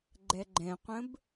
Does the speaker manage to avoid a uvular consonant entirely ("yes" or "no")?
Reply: no